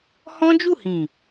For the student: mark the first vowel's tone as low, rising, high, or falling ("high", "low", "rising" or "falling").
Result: high